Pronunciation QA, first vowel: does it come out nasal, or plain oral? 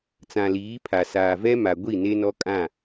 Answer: nasal